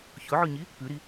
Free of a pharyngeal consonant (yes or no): no